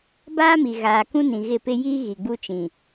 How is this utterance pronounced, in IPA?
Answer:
baː˦mi˨ ɣaː˨kũ˦ nĩ˨ɣɪ˦˨pɪ˦ jiː˦ ɣi˨ɡ͡bu˦t͡ʃĩ˨

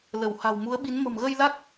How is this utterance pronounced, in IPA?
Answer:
lə˧˩w ha̤˨˩wmu˨˦ə̯ɓi˨˦n mə̤˨˩mɣə˧jla˦˥k̚

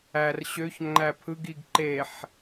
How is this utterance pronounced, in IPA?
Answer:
ær ɕøç ŋ͡ǃæpʰɯɡ iɡǃeħ

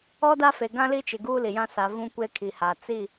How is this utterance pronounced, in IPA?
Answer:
ɔ˦da˦fe˨ ɡã˦li˦t͡ʃɪ˨ ɡuː˦li˨jã˦ sa˨ vũ˦kʷe˦kʰi˨ha˨ t͡si˦˨

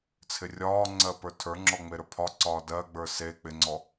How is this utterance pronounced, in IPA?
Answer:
t͡sʰɪrʲɒːŋ͡ǀɜ pə˞tʰə˞ŋ͡ǁɔ ŋ͡meɾə˞pʰɒǀɒː dɜɡ͡bə˞ se k͡pɪŋ͡ǀɔ

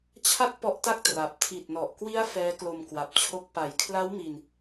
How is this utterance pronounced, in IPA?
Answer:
t͡ɕʰa˥˩t̚ pɔ˦˥ʔta˥˩k̚ tra˨˩p̚ tʰi˨˩t̚nɔ˨˩ʔkwi˦˥a̯ fɛː˦˥klo˧mkwa˨˩p̚t͡ɕʰo˦˥k̚ pa˨˩jkʰla˦˥w mi˧n

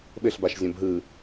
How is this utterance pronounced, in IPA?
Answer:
ɓɘɬbaʃzʲõb ɦɯ

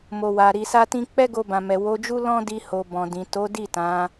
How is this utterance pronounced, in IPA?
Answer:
mo˨wa˨ ɾi˨sa˧tĩ˧ k͡pɛ˦ɡo˧bã˨mɛ˨ wo˨˦d͡ʒu˦ lɔ̃˦di˧ho˨ bɔ̃˨dĩ˨ to˨˦di˦˨ tã˨˦

